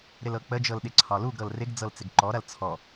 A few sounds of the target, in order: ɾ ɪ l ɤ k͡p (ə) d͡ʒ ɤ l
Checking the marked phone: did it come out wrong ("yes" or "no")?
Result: no